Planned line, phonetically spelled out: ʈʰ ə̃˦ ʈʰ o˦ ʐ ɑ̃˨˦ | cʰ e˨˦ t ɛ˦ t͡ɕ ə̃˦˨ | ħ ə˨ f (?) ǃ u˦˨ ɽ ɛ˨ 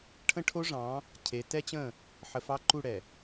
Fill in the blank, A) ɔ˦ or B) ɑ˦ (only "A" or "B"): B